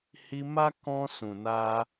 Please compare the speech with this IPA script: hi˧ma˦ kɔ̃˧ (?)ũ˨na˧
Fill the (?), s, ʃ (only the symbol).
s